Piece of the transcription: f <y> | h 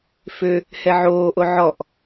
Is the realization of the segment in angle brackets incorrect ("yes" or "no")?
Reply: yes